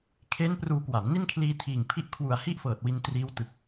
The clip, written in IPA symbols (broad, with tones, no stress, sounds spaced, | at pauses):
kʰ e˦˥ n p r uː˧ k w a˩˦ m n i˥˩ n kʰ l iː˧ tʰ iː˨˩ ŋ pʰ i˦˥ ʔ kʰ w u˨˩ a̯ h i˥˩ ʔ f ɤː˨˩ t̚ w i˧ n t r iː˦˥ w t ɯ˨˩ k̚